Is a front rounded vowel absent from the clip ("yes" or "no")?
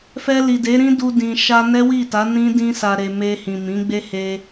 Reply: yes